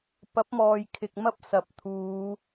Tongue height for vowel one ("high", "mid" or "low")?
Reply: low